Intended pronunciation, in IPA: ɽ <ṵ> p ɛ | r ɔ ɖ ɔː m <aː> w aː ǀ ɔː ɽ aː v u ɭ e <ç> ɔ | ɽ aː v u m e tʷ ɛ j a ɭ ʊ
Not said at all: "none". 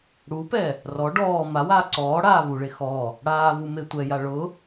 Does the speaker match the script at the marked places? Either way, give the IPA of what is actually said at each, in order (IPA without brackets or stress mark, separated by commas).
u, a, x